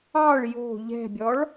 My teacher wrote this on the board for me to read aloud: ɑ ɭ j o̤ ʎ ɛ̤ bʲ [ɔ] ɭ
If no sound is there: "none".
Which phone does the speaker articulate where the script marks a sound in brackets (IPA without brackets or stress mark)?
ɔ